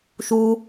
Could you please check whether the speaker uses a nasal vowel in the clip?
no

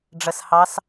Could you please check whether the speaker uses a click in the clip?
no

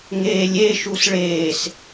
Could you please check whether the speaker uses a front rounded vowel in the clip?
no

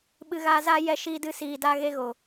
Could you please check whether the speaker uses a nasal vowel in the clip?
no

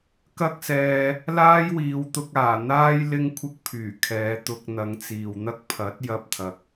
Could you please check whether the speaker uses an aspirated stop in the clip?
yes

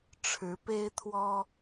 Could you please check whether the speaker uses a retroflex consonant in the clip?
yes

